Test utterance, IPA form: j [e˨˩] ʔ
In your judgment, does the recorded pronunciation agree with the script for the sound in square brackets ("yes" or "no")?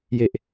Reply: yes